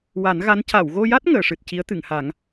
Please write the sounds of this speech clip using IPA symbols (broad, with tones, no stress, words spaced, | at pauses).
wa˨˩˦nɣa˧˥n ca˨˩˨wɣo˧ja˦˥t̚ ŋəː˨˩˨ʂɨ˨˩t̚ ci˧˥ə̯t̪ɨ˨˩˨ŋha˨˩˦ŋ